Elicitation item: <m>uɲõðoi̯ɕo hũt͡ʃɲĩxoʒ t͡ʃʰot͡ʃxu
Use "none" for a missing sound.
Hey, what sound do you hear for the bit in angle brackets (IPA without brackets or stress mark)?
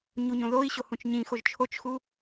ɲ